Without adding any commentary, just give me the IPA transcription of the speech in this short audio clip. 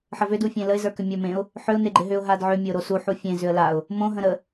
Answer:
ħ ə v ʏ d u fʲ ẽ l ə ɪ̯ z ə˞ k ʏ mʲ ə˞ m ẽ ʊ̯ | ħ ʏ ʊ̯ n e ɡ͡ǃ ɪ ɦ ʏ ʊ̯ ɦ a d ʕ ʏ mʲ ə ʊ̯ ɾ o s u ħ u fʲ ẽ z ʏ ə̯ l a ʊ̯ | m õ ɦ ə̃ ɾ ə

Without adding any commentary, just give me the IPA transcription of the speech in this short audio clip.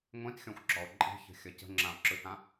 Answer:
ŋʷ ĩ t xʲ ɔ̃ xʷ ɡ͡ǁ ɔ o̯ ǃʼ i̤ ç ə̤ xʲ ʌ c ə̤ ŋ͡ǁ ã o̯ ǁ ɯ t ã

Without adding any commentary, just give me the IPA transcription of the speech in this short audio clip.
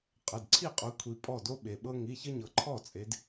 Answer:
qʼ ə˩˧˩ d ǀʰ i˥˩ qʼ o˨˦ kʷʰ i˨˦ pʼ ɔ˥˩ d o˦ ɓ e˩ ɓ ɤ˦ ŋ i˩˧˩ ç ə˦ ɲ ɤ˩ ǃʰ ɔ˥˩ t͡sʼ e˨˦ d

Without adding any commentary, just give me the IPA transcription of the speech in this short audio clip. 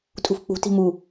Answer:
tʼ ṳ f k͡p ṳ t i̤ m u

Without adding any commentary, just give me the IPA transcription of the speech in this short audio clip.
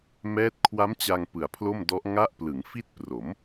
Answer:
m ɛː˦˥ t̚ kʰ w a˦˥ m t͡ɕ a˧ ŋ p ɯ˨˩ a̯ pʰ l o˥˩ m d ɔ˦˥ ʔ ŋ a˥˩ ʔ p l ɯ˩˦ ŋ f i˦˥ t̚ p r o˩˦ m

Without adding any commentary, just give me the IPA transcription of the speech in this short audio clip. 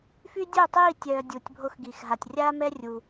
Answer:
f y˦ dʲ o˦˨ tˤ iː˦˨ tʲ œː˨ dʲ u˨ tʲ bʱ o˧ x ɡ iː˨ x ɦ a˨ tʲ rʲ aː˦ m ɛ˦ rʲ u˧

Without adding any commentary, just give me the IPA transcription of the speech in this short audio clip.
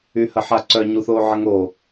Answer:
y h ə ħ a ǀ œ ɲ u θ oː ʕ ə ŋ o

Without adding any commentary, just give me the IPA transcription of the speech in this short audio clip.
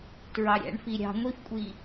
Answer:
t ɹ ɑ ɾʲ æ̰ ɳ f i ɾʲ ɑ̤ ŋʷ i f kʷʼ i

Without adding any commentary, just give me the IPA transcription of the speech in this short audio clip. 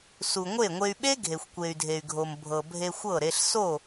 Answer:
s u˨ ŋʷ e˦˨ ŋʷ e˧ y̯ ɓ e˦ ɡʱ e˨ xʷ kʷ e˨ y̯ dʱ e˨ y̯ ɡʱ o˨ m bʱ ɤ˨ bʱ e˧ xʷ ɤ˦˨ ɾ e˧ ɬ s o˦˨

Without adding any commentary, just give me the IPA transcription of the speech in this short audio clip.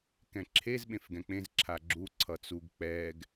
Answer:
k ɛ̃ ǁʰ e z ɓ ẽ f ɡ ɛ̃ k͡p ẽ z ǁʰ a ɡ͡ǁ u ǀʰ ʌ t͡s u ɡ k͡p ɛ ɡ

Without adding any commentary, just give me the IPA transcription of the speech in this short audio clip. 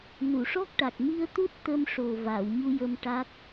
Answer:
n u˨˩˨ ʂ ɔ˦˥ k̚ ʈ a˨˩ k̚ m i˧ ə̯ t̪ u˦˥ t̚ t̪ ə˧ m ʂ o˨˩ v a˨˩˨ w ɲ u˧ j ə˧ m ʈ a˦˥ k̚

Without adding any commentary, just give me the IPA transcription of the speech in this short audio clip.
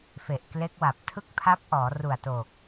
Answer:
f e˨˩ ʔ k l e˦˥ k̚ w a˨˩ p̚ tʰ ɯ˥˩ k̚ pʰ a˦˥ p̚ ʔ ɔː˩˦ r u˨˩ a̯ t o˨˩ k̚

